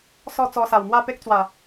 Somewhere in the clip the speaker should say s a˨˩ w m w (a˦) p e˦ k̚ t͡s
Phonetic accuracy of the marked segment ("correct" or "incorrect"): incorrect